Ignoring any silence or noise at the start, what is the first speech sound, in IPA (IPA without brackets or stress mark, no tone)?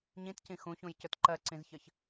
ɲ